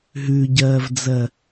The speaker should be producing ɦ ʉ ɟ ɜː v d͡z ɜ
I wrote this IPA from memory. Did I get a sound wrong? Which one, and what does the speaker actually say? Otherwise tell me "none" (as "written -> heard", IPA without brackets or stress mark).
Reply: none